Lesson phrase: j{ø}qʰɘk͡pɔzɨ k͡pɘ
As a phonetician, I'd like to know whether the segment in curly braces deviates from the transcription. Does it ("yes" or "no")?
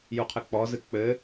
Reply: yes